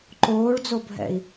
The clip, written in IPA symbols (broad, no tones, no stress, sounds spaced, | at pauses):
ǃ oː ɭ d͡z o bʱ ɛ̰ i̯